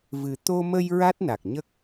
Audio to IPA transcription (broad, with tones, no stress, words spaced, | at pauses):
vɨ˨˩t̪o˧mə˧j ɹa˦˥t̚na˨˩k̚ɲə˦˥k̚